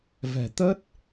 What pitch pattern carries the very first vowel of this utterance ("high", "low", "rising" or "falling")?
low